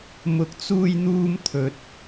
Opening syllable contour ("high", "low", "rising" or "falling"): low